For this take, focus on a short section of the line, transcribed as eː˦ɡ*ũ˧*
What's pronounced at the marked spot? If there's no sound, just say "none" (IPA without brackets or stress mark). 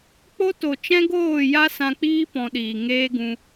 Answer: ũ˧